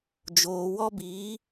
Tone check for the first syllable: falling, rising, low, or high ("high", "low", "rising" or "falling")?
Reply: low